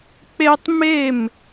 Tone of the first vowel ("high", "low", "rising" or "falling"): high